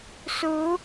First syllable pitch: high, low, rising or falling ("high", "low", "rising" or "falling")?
rising